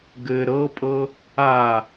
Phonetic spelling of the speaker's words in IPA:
ɡ ɘ ɾ ɤ pʼ ɤ | a

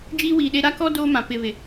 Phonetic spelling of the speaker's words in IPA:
d͡ʒ iː˦ w iː˨ ɗ e˦ ɾ a˦ k ɔ˦ d oː˦ m ã˨ p ɪ˨ β ɪ˨

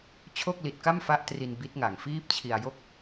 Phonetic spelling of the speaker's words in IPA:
t͡ɕʰ o˥˩ k̚ l i˨˩ t̚ k a˥˩ m f a˦˥ ʔ t r i˧ n b i˦˥ t̚ ŋ a˨˩ ŋ f iː˥˩ p̚ t͡ɕʰ i˧ a̯ j o˥˩ k̚

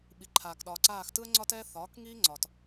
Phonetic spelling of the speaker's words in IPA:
ɓ i˩ ǃʰ aː˩ k ɗ ɒː˩ ǀ aː˧˩ x t ɯ˦ ə̯ ŋ͡ǀ ɒ˦ t ɛː˦ θ ɒː˩˥ k ŋ iː˦ ŋ͡ǀ ɒ˩ t

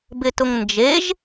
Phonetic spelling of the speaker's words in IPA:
b ɪ t ʊ ŋ n d͡ʒ e ʒ

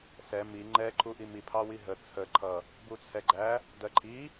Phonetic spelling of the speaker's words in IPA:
s ɛ m i ŋ͡ǃ ɛ ǃʰ u ʔ i m i pʰ ɑ w i ɦ ə t͡sʰ ə ǃʰ ʌ | b u t͡sʰ ɛ ɡ͡ǃ æ | d ɜ ǃʰ i

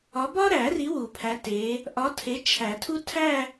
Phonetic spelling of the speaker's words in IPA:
ɒ˨˦ b ɒ˥ ɾ æ˨˩˦ r i˨˦ w u˨˩˦ pʰ æ˨˦ t e˨˦ | ʔ ɒ˨˦ tʰ e˨˦ t͡ʃʰ æ˨˩˦ tʰ u˥ tʰ æ˥˧

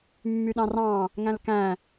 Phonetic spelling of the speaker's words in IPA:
mː y ɗ ɑ̃ r ɑ̃ | ŋ æ̃ l k æ̃

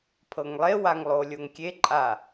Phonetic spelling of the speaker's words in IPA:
pʰ ɤ ŋ lˠ e w a ŋ lˠ o lʲ o ŋ kʲ e ǃʼ a

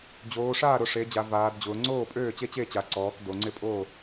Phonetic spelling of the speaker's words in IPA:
d͡ʑ oː˩˧ ʂ aː˥˨ ɾ ʊ˩˧ ʂ e˩˧ d͡ʑ a˩˧ v aː˩˧ d d͡ʑ ʊː˩˧ ŋ͡ǀ oː˥˨ pʼ øː˥˨ t͡ɕ e˥˨ t͡ɕ e˥˨ t͡ɕ a˩˧ ǀ ɔː˩˧ k d o˩˧ ŋ͡ǀ ɪ˥˨ pʼ oː˥˨

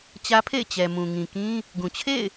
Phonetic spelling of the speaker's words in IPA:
t͡ɕ ä˦ pʰ ḛ˦˨ ɪ̯ t͡ɕ ɛ˨ m ũ˨ ŋ ĩ˨ k ĩ˦ | ɡ ũ˨ t͡ɕʰ ḛ˦˨ ɪ̯

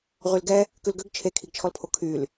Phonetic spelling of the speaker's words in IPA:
ʁ y l ɡ ɛ | k ʉ l ɡ ø ɡ t͡ʃʰ e kʰ i ɡ t͡ʃʰ ɔ l pʰ o kʰ y l

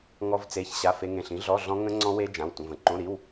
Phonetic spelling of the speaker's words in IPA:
ŋ ɔ˦˥ v t͡s e˧˥˧ ç ɕ a˧˥˧ f e˦˥ ŋ ẽ˧˥˧ ɬ ĩ˦˥ ɮ ɔ˧˥˧ ɮ ɔ̃˦˥ ŋ ə̃˦˥ ŋ͡ǀ ɔ̃˦˥ w e˦˥ d͡ʒ ã˧˥˧ w tʷ ə̃˧˥˧ v ə̃˦˥ ǃ õ˧˥˧ ɾ i˧˥˧ w

